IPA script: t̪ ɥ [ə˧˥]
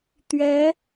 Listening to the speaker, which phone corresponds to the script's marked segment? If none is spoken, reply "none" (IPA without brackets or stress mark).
ɛ˧˥